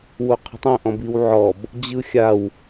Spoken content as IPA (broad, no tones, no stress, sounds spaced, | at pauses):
w o qʰ ə̤ tˤ õ ʔ ɔ̃ b i w ʕ ɔ b | d͡ʑ ɯ xʲ a w